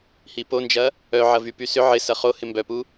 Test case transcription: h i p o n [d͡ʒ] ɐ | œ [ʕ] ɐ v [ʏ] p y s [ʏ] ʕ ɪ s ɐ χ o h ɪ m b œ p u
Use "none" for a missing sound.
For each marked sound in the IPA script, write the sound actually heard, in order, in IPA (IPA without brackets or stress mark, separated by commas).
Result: d͡ʒ, ʕ, y, ʏ